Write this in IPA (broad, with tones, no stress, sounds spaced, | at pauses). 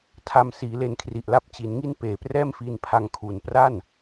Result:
tʰ a˧ m s iː˩˦ l e˧ n kʰ r i˨˩ ʔ l a˥˩ p̚ t͡ɕ i˩˦ n ŋ i˥˩ n p eː˨˩ p r ɛː˥˩ m f iː˧ n pʰ a˧ ŋ kʰ u˩˦ n p r a˥˩ n